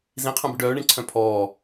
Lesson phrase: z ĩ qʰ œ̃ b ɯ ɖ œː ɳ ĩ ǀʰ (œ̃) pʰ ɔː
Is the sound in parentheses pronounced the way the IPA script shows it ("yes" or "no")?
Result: yes